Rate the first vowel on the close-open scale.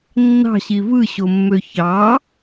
open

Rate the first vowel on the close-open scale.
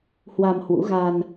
open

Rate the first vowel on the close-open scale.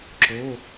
mid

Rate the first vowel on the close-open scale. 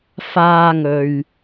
open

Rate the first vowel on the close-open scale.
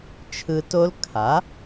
close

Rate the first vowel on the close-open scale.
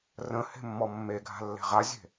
mid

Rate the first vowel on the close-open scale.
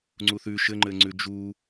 close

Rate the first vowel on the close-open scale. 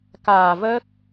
open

